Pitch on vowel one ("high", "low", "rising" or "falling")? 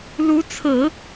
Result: rising